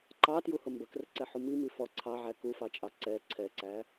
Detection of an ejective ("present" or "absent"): present